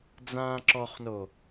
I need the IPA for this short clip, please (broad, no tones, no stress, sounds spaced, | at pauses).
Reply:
d͡z ãː ǁ ɔ χ n o